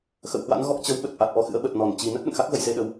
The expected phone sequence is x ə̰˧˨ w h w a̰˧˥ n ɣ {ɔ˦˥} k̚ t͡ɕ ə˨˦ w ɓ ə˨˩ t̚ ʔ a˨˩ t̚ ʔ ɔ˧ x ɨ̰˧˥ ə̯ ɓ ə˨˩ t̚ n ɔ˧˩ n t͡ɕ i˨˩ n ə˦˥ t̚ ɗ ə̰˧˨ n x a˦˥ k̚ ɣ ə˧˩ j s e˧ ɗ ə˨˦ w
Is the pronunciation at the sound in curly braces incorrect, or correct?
correct